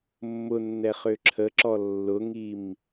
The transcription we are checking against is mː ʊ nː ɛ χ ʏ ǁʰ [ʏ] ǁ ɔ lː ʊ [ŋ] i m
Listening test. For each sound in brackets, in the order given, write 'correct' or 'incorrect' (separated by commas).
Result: incorrect, correct